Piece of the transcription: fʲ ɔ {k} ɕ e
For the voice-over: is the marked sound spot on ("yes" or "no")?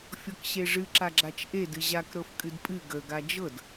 yes